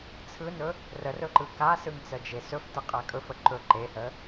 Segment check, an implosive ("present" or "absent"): absent